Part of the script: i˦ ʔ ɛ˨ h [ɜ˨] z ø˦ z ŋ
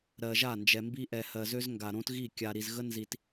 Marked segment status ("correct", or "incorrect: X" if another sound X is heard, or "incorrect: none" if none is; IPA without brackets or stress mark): correct